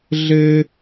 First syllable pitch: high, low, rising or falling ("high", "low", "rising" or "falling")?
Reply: low